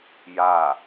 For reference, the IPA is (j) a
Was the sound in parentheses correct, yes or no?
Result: yes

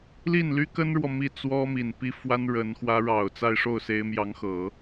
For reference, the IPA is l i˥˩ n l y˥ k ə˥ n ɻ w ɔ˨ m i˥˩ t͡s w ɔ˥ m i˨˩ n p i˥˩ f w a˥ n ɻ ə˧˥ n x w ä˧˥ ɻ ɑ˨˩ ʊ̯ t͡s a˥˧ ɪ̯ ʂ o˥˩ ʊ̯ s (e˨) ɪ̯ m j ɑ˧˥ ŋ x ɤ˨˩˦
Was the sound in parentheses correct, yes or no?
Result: no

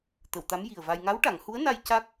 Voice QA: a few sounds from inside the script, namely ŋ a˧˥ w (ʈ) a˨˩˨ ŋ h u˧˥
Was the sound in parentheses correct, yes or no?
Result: yes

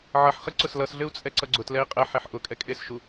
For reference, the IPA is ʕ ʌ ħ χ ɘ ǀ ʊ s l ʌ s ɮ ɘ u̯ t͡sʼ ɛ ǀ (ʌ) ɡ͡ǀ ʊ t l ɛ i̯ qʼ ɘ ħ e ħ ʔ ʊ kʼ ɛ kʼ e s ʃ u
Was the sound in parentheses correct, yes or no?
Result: yes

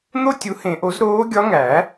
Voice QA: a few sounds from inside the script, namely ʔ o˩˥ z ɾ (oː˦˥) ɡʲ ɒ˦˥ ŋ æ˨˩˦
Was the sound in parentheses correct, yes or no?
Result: yes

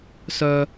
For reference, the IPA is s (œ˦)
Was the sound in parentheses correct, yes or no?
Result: yes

